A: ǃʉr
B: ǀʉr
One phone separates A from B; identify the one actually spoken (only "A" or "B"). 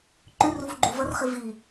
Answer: A